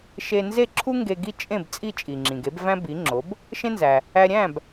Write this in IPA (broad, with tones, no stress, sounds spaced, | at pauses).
ʃ e˧ n z e˥˩ ǁʰ u˥ ŋ ɡ e˧ ɡ i˥˩ t͡ʃʼ ẽ˥˩ b t͡sʼ i˥˩ t͡ʃʼ i˩ ŋ͡ǁ ĩ˩ ɡ e˩˥ b v æ̃˥ b i˩˥ ŋ͡ǁ o˩˥ b | ʃ ẽ˥ n z æ˩ | æ˧ ɾʲ æ̃˥˩ b